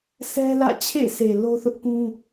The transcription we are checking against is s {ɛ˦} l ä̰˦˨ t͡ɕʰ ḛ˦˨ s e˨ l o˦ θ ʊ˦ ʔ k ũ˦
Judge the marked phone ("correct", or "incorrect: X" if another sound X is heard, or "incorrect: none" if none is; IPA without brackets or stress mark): correct